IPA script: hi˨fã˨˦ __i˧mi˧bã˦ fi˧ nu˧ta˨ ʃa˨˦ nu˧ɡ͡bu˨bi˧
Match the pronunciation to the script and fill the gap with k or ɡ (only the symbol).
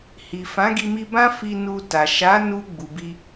ɡ